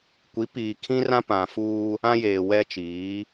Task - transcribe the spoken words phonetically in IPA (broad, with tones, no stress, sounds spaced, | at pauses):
kʷ i˨˦ p iː˨ kʰ ĩ˦ r ã˦ p ã˨ f uː˦ | ã˦ j eː˨ w ɛ˦ t͡ʃ iː˨˦